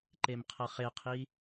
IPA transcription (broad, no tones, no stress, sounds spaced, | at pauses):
ǃ e m qʰ ʌ χ e qʰ i